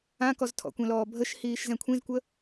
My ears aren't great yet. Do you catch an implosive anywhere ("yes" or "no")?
no